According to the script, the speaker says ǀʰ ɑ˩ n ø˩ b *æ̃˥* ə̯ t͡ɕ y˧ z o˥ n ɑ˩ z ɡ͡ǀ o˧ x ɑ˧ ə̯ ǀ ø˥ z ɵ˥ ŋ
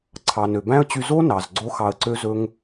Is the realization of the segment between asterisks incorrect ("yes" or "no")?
no